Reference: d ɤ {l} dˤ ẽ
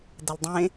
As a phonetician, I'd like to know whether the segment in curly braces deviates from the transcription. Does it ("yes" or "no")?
no